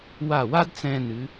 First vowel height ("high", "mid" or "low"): low